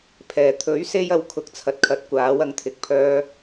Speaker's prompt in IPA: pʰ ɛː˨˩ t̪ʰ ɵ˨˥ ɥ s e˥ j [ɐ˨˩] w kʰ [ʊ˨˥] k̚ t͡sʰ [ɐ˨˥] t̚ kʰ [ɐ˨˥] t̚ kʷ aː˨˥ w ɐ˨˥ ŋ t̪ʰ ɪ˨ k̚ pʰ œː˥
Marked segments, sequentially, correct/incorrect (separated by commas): incorrect, correct, correct, correct